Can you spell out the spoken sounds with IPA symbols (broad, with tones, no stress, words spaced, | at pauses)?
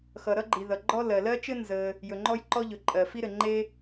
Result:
xʌ˩ɾʌ˥ɡ͡ǃi˩ ðʌ˩ɡ͡ǃɔ˥ lɜ˩lɜ˥t͡ʃɘ˥ nzə˩ | jɵ˩ŋ͡ǃɔ˥jǃɔ˥ʎɵ˩ ǃʼɜ˩fi˥ɾɘ˩ŋ͡ǃe˥